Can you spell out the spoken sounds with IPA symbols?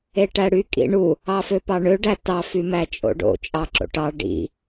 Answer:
eʈæɽy kʼḭɳu | ɑføpɑɳø ɖætɑ fymæt͡ʃʼo̰ɖo̰ t͡ʃʼɑǁo̰ʈɑ ɖḭ

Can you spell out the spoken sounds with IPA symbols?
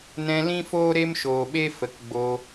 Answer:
nɛ̃˧lĩ˦foː˦ ɾe˦mʃoː˨ɓe˦ fə˨kɡ͡bo˧

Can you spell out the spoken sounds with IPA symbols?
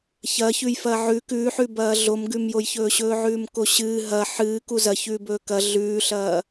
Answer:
çɐçʉj fɐʕʉ kʉːħʉbɐː ɮomɡʉmjojçɵː ɕɵːʕʉːmkoɕɨː ɦɐ ħɨːku zɐ çʉːbɵːkɐ ɮʉːɬɐː

